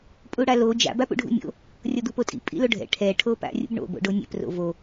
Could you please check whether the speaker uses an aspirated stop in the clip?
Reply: yes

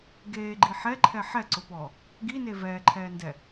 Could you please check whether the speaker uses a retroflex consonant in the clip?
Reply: no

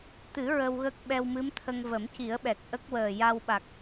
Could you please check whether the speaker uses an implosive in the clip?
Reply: yes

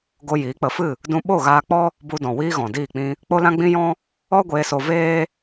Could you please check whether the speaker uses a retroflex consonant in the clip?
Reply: no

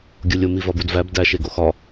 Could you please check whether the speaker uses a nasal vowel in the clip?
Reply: no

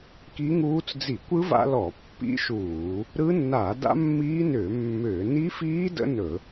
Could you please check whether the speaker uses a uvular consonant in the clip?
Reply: no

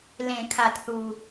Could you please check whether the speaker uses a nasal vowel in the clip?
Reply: yes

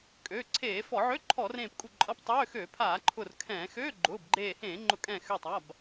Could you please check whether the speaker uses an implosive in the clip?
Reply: no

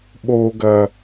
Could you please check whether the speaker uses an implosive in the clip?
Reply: yes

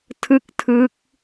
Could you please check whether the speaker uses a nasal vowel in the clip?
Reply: no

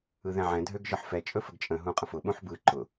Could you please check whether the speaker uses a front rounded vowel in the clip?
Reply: yes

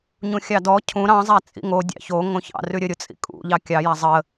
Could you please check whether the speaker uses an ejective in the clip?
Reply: yes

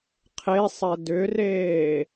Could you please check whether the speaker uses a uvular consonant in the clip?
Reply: yes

